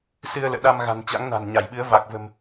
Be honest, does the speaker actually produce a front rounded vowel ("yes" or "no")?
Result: no